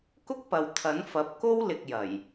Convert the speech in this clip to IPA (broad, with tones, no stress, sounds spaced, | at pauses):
k ʊ˥ k̚ p ɐ˨ w t̪ʰ ɐ˨˥ n f ɐ˨˥ p̚ k o˥ w l ɪ˧ k̚ j ɐ˨˩ j